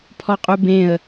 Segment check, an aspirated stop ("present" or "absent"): present